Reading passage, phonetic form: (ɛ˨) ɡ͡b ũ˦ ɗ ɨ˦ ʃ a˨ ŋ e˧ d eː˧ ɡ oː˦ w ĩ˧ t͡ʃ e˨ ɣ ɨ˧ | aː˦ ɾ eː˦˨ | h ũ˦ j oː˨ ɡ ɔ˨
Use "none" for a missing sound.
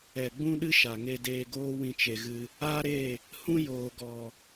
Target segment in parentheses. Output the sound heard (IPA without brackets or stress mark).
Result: ɛ˨